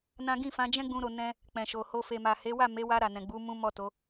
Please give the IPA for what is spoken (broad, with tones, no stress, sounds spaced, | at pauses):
n ã˦ ɡ ĩ˦˨ f ã˨˦ d͡ʒ ɛ̃˦ ɡ͡b ũ˧ ɾ o˧ n ɛ̃˦ | k͡p ɛ̃˨ ʃ o˨ h o˧ f e˨ m a˨ h e˨˦ w a˦˨ m e˨˦ w a˧ ɾ a˨ n ɛ̃˨ ɡ͡b u˨˦ m ũ˦ m ɔ˦˨ t o˨˦